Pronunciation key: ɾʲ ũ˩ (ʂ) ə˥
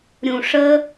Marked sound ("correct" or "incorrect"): correct